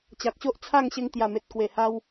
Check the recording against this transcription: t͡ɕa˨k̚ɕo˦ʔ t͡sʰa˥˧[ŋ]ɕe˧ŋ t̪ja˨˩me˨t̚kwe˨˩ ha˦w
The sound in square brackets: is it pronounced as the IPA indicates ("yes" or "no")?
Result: yes